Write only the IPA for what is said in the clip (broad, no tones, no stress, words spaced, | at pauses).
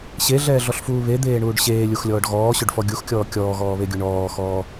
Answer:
ɕeɮɛːɮɔɬfuː βed̪eːɳuːɖ ɕeːlʲuxlʲɔːɖ ɣɔːɕɵɖfɔ ɡʲuxkʲɔː kʲɔːɣɔːβeɡʲu ɳɔːxɔː